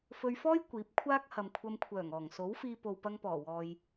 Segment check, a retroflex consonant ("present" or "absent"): absent